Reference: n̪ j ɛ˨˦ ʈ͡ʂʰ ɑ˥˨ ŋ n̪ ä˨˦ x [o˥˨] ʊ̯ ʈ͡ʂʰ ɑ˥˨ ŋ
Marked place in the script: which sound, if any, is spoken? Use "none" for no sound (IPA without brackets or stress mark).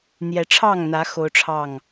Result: o˦